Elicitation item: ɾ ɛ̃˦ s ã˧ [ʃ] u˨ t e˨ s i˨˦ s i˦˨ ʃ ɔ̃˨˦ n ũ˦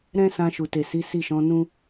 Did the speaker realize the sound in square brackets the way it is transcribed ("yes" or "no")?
yes